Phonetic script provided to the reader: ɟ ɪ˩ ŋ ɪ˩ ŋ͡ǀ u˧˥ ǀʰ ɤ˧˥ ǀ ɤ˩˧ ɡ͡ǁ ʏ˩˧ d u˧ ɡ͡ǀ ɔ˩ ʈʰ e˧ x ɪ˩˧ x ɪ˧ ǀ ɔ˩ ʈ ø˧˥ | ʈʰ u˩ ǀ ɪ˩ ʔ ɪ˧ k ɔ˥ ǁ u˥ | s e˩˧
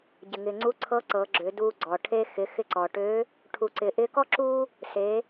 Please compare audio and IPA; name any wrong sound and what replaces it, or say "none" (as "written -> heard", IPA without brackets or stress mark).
none